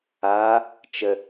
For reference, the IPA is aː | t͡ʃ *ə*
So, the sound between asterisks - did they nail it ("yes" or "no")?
yes